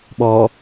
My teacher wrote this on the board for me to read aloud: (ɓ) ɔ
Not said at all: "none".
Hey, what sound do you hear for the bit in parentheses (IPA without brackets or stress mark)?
ɓ